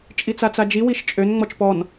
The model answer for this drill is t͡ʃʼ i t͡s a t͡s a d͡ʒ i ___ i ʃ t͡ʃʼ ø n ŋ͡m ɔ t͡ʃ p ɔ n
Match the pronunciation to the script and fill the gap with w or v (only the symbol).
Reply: w